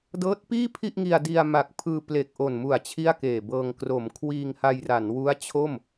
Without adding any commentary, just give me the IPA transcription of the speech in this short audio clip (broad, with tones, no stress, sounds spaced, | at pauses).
d ɤː˦˥ t̚ p iː˥˩ pʰ i˥˩ ʔ ŋ i˧ a̯ d i˧ a̯ m a˨˩ k̚ pʰ ɯː˧ p l e˨˩ k̚ ʔ o˨˩ n m u˨˩ a̯ t͡ɕʰ i˥˩ a̯ k eː˨˩ b ɤː˧ ŋ k r o˩˦ m kʰ w iː˧ ŋ h a˧ j r a˩˦ n w u˦˥ a̯ t͡ɕʰ o˥˩ m